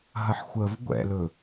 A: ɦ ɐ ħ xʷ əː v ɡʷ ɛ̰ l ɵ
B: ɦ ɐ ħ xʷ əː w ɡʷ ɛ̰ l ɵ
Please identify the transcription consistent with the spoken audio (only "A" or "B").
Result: A